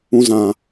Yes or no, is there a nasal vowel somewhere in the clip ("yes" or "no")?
yes